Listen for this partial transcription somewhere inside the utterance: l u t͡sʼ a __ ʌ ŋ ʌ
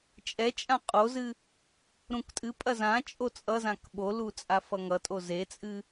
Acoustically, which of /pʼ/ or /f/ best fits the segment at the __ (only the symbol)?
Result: f